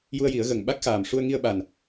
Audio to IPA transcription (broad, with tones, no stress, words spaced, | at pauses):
ju˧ə̯ji˨˩˦ə̯ɣə˨˩ŋ ɓa˦˥k̚xaː˨˩m ʂu˧ə̯ŋi˧ə̯ɓa˨˩n